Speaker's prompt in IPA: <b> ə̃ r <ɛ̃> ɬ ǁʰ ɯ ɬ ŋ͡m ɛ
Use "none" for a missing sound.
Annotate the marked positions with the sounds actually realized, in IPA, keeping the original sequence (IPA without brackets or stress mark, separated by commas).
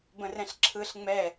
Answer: b, ɛ̃